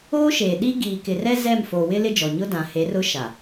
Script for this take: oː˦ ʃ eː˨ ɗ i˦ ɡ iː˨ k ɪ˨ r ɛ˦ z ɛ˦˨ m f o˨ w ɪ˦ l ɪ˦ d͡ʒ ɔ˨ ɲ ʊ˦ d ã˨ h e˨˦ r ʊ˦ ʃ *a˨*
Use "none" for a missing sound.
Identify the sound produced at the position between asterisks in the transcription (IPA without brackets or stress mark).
a˨